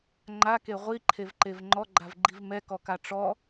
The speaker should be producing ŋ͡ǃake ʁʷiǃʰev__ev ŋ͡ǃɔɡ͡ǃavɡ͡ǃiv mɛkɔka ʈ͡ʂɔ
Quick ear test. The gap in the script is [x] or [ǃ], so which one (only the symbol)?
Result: ǃ